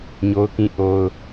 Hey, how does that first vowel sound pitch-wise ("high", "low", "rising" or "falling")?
high